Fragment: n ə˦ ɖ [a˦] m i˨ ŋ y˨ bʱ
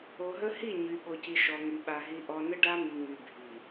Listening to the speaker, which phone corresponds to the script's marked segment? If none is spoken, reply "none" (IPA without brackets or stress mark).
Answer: a˦